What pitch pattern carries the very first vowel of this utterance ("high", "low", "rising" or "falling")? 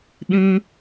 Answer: high